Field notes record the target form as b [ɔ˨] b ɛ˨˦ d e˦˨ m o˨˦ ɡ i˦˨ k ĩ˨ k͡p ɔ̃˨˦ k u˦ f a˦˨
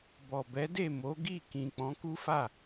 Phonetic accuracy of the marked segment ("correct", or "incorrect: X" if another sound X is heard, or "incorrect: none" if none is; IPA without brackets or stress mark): correct